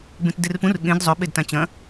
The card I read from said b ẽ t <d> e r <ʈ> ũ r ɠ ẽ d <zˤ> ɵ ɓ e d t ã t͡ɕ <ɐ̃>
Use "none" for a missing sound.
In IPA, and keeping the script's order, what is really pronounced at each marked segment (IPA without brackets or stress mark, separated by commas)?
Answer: d, p, zˤ, ɐ̃